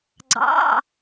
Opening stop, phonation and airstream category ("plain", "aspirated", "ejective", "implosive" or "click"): click